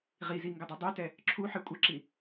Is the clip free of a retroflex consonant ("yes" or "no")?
yes